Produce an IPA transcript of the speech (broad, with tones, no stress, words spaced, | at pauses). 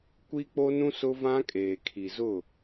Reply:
kʷi˦k͡po˦nũ˦ sʊ˦vã˦ kʼeː˨kʰi˨zʊ˦˨